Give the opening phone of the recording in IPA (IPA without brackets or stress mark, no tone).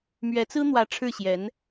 m